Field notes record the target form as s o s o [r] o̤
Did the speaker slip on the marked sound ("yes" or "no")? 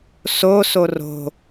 no